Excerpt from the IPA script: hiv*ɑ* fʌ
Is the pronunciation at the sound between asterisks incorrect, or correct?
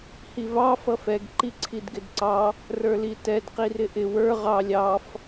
correct